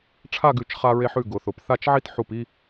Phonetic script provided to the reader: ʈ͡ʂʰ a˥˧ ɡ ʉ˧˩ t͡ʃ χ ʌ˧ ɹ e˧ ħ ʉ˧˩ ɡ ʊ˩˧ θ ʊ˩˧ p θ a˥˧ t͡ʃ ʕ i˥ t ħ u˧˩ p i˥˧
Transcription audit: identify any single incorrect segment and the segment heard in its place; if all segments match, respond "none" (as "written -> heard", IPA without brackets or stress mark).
ʌ˧ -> a˧